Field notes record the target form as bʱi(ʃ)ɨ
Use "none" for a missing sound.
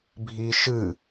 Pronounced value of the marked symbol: ʃ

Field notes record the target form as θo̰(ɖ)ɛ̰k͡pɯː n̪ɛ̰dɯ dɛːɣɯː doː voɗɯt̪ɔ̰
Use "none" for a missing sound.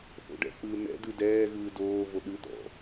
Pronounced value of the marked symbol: ɖ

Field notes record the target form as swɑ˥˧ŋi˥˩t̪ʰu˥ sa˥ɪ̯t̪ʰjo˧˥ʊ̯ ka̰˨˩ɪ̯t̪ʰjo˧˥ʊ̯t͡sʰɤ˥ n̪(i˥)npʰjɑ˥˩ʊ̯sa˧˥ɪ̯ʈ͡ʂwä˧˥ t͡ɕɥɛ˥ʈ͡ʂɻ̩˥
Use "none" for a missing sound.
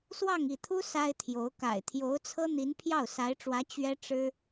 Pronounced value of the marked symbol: i˧˥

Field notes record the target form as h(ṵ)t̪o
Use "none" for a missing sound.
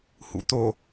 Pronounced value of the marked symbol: ṵ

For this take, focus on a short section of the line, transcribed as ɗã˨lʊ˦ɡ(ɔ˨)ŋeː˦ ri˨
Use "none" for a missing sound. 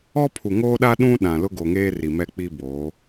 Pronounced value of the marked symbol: o˨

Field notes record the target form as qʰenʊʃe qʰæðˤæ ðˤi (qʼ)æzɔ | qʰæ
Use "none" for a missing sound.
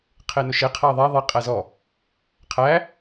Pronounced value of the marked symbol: qʼ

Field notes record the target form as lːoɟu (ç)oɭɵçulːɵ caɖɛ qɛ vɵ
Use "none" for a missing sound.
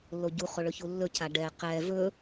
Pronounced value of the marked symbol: χ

